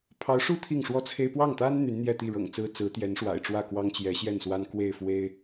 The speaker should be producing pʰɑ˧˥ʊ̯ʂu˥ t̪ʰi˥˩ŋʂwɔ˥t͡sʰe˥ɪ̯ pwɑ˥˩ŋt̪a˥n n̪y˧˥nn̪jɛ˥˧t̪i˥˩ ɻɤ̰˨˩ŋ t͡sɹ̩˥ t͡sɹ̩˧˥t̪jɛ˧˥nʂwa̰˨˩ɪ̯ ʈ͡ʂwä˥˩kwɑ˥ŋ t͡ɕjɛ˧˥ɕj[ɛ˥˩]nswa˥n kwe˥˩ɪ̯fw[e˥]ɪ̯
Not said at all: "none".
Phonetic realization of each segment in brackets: ɛ˥˩, e˥

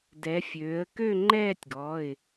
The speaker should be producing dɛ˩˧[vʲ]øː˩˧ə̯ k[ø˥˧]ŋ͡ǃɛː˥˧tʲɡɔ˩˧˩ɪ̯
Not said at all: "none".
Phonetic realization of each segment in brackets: fʲ, ø˥˧

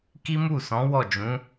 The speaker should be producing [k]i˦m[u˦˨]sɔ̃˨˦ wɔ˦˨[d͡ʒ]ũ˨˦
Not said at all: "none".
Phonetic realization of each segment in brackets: k, u˦˨, d͡ʒ

